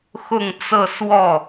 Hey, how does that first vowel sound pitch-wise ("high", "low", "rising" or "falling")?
falling